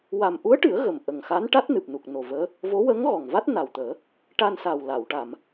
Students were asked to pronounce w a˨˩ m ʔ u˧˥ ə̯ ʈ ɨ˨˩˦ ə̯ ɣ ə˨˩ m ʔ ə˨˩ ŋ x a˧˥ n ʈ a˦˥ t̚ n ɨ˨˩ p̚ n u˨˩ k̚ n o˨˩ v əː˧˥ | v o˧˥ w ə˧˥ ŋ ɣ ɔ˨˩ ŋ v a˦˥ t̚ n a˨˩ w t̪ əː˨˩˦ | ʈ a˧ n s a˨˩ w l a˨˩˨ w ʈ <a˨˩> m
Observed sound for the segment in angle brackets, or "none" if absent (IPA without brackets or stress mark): a˨˩˨